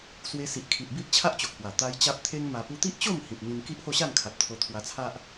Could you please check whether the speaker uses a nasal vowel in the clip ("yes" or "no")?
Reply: yes